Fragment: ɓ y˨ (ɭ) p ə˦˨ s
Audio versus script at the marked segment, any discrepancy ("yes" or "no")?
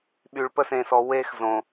no